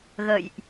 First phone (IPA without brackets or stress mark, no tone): ɣ